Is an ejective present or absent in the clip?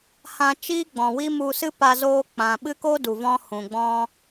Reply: absent